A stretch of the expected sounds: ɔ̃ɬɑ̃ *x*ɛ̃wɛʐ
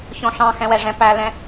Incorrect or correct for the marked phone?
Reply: correct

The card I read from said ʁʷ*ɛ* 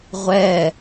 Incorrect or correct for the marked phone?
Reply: correct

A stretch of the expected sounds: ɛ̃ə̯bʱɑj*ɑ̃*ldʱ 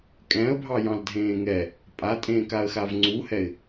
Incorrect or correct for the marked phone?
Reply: correct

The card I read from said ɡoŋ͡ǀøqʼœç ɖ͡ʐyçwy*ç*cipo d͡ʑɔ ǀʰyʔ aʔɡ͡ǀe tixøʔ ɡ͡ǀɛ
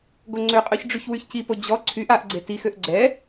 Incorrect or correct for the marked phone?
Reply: correct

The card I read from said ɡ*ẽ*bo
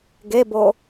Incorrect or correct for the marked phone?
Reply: incorrect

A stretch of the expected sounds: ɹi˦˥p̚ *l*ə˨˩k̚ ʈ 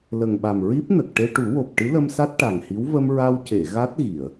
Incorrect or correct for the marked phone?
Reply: incorrect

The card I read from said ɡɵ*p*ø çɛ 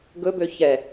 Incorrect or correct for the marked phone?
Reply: incorrect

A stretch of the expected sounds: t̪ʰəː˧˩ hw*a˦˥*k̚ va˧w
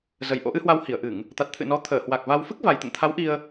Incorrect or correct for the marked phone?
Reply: incorrect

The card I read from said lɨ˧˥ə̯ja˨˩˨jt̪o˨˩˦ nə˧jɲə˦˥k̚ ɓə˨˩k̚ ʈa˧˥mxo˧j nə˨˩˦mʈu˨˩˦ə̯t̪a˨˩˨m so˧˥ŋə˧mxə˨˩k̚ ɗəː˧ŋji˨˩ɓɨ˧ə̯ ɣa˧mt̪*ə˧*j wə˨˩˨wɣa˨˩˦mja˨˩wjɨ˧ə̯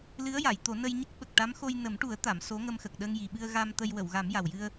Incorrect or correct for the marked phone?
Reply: correct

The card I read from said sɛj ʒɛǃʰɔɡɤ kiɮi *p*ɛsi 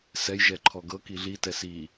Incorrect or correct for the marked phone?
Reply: incorrect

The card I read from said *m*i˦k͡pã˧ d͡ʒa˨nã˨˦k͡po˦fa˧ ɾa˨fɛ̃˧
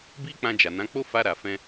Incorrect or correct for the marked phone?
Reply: incorrect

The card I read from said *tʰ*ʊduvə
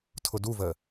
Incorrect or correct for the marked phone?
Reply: correct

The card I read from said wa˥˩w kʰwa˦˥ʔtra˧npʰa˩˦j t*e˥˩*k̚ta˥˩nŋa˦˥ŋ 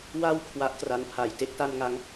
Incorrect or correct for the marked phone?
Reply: incorrect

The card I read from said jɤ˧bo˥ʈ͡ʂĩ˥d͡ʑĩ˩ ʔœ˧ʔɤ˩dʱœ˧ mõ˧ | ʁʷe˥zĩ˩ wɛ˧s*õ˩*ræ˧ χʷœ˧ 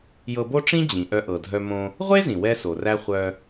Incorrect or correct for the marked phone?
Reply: incorrect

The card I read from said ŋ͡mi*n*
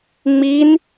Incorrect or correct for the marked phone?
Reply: correct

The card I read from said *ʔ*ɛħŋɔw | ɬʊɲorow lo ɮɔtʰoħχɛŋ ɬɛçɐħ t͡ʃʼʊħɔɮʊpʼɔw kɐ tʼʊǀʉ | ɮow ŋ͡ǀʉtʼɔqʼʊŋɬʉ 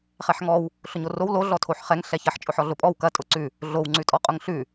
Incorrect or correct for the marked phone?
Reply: incorrect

